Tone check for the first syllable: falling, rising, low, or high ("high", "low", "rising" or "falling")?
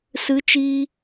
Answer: rising